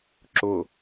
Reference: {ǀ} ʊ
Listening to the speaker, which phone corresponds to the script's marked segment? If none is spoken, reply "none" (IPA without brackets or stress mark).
ǁ